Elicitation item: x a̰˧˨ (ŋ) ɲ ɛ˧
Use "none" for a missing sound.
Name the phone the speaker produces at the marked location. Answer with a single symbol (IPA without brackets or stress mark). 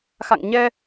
ŋ